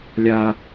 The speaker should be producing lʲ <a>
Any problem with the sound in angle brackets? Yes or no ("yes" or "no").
no